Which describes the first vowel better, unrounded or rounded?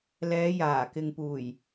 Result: unrounded